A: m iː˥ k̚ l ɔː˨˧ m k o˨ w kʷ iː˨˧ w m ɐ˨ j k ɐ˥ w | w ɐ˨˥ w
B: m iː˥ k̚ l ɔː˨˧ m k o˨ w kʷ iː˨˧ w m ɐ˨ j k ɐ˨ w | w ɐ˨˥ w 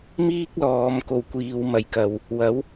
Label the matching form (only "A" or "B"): B